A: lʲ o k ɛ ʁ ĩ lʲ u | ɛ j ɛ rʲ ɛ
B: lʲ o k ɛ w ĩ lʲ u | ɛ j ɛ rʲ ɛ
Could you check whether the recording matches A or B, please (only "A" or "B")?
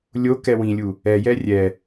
B